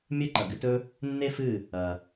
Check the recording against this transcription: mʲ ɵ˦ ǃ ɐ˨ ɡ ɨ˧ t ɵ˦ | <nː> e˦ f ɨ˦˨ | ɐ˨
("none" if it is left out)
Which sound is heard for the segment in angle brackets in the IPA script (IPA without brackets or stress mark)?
nː